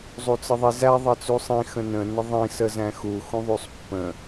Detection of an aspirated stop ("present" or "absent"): absent